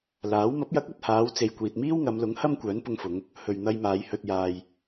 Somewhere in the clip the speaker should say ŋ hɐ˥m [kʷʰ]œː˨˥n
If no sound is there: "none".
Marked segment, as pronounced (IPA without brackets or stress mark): kʷ